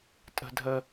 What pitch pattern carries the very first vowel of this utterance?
high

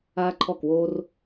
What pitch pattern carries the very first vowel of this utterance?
high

